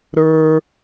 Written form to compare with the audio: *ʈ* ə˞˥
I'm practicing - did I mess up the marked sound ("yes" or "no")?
yes